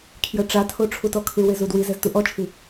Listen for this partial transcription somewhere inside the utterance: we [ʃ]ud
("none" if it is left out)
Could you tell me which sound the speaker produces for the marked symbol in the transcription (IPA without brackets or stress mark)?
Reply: z